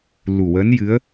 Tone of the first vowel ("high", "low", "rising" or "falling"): low